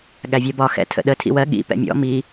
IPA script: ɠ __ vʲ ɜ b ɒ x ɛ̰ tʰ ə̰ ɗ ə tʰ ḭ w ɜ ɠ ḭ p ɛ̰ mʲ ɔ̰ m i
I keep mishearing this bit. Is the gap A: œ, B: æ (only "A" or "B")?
B